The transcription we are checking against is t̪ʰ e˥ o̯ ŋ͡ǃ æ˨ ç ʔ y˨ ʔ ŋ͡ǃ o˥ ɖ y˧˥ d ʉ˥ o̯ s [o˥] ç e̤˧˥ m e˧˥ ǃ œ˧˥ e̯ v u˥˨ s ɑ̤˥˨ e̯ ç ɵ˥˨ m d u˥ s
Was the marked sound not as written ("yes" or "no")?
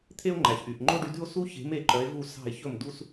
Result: yes